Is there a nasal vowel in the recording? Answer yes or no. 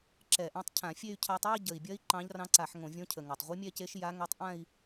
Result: yes